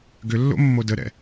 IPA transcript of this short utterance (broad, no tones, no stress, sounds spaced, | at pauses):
ɡ ʏ lː o̰ mː o d ə ɾ ɛ̰